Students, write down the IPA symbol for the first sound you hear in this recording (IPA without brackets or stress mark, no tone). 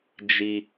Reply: d͡ʒ